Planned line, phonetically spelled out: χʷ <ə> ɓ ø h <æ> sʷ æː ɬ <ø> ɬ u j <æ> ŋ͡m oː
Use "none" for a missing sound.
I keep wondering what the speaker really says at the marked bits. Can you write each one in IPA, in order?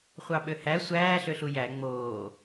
ɑ, æ, ø, æ

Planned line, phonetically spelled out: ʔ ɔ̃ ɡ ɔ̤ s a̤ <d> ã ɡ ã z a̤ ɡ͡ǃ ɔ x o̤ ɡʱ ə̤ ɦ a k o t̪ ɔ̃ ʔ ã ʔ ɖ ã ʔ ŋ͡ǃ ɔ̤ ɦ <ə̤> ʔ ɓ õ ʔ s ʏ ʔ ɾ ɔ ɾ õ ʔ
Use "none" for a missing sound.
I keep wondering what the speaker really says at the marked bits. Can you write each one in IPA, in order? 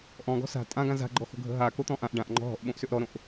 tʼ, ɔ̤

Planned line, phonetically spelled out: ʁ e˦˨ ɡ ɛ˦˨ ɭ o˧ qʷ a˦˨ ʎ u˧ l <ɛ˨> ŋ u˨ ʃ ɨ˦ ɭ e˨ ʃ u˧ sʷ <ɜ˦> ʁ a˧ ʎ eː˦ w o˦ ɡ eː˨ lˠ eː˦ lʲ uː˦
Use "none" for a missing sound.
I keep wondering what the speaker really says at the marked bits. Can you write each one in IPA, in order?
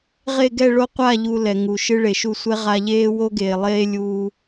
ɛ˨, ɛ˦

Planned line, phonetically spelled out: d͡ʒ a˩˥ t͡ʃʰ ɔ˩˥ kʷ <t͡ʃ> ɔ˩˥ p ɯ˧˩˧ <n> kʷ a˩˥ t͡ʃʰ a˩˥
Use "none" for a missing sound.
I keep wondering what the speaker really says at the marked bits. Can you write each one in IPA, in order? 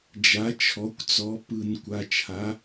t͡s, n

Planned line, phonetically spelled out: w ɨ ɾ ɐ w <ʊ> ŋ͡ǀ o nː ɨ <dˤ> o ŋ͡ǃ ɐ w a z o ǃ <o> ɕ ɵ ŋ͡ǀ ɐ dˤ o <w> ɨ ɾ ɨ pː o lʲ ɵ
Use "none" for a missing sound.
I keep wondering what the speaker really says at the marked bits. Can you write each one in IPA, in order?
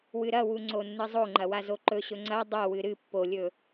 u, zˤ, ɵ, w

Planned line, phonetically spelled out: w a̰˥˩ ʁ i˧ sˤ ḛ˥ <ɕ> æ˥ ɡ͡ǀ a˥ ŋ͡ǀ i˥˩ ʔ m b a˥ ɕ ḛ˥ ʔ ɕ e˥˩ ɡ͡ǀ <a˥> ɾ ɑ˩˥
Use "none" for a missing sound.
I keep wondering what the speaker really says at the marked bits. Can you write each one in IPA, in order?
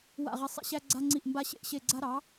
ɕ, a˥

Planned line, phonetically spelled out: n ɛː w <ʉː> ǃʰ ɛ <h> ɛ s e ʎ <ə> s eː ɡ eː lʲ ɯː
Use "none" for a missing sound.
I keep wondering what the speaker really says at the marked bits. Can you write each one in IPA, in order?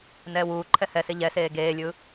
uː, h, ɛ

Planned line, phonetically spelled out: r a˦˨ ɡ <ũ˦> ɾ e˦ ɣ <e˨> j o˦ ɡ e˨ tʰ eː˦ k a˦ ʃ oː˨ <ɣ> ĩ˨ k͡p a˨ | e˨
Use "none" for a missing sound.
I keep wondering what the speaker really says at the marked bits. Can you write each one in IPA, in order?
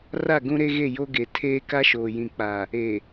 ũ˦, e˦˨, j

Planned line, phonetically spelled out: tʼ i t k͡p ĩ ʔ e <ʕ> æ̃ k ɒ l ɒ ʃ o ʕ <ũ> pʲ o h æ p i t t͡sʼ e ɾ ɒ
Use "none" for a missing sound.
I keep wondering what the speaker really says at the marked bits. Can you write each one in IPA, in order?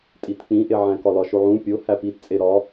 ʕ, ũ

